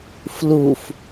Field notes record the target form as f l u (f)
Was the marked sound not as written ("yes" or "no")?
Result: no